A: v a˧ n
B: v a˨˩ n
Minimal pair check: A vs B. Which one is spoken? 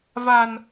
B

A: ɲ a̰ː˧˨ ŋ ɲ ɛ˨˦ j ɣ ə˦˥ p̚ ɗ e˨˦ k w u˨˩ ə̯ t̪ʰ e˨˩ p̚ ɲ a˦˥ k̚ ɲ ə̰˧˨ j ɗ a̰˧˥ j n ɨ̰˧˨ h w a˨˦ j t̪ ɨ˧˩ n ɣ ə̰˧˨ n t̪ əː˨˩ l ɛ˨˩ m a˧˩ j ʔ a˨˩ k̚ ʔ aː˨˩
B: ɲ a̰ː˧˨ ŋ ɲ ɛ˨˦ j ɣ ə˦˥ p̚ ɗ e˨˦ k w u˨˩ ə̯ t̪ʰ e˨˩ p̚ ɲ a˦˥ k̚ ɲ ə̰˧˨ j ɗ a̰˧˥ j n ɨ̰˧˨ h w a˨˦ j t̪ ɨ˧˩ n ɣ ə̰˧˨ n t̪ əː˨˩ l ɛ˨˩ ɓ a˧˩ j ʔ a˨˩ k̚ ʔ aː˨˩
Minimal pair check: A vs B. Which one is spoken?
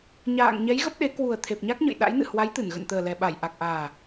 B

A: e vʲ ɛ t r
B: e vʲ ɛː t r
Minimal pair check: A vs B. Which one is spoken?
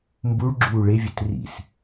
A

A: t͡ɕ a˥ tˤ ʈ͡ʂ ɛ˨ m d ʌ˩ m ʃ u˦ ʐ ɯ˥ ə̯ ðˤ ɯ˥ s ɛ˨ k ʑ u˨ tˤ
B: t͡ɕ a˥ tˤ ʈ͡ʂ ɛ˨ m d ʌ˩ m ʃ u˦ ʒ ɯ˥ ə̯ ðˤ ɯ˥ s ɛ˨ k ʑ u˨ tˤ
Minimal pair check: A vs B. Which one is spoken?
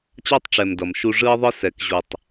A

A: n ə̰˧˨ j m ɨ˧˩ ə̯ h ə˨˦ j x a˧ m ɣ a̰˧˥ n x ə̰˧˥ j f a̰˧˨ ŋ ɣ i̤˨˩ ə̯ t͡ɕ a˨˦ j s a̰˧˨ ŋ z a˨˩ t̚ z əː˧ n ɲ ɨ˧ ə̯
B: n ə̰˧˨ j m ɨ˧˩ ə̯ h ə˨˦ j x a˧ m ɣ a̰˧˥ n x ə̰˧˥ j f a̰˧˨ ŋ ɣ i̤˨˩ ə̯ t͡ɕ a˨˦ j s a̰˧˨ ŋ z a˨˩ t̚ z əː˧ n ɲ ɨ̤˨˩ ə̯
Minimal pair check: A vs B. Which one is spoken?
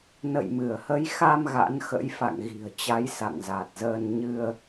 A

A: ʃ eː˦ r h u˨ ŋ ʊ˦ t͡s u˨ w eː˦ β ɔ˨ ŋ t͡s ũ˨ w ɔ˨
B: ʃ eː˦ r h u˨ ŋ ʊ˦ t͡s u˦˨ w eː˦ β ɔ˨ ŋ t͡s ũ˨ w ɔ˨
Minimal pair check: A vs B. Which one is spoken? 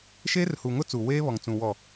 A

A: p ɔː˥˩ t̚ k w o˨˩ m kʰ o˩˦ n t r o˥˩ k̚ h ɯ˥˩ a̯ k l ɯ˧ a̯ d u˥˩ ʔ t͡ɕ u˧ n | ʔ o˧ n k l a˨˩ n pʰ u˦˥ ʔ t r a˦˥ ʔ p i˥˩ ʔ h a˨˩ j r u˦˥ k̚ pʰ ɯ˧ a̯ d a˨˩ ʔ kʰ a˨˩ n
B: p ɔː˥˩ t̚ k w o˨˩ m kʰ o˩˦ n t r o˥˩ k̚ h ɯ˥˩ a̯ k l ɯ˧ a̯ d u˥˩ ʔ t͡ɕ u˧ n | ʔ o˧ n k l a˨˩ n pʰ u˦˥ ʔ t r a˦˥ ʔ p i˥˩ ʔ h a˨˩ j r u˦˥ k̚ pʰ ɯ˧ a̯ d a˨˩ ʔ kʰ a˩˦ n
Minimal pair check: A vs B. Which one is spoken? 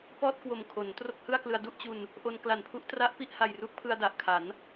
B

